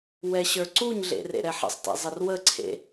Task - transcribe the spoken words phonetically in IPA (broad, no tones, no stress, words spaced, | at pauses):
wɛɕə˞ǀuɲɮḛ rḛɾɛħə̰sˤtḛ zˤərwəǀʰḛ